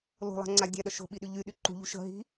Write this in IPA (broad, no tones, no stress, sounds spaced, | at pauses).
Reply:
l o̤ lˠ a̤ ŋ͡ǀ a dʲ a ɗ ə ʃ o̤ ɓ i ɗ y ʎ y ɗ y ǃ ṳ ʎ ṳ ʃ ə̤ ɦ i̤